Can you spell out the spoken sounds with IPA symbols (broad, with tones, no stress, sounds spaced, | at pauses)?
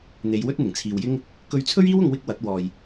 n̪ e˨˧ j w ɵ˥ t̚ n̪ ɪ˨˩ ŋ t͡sʰ iː˨ w j ɪ˥ ŋ | k ɵ˧ ɥ t͡sʰ ɵ˥ ɥ iː˥ w ʊ˧ ŋ w ɪ˥ k̚ w ɐ˨˥ t̚ w ɔː˨ j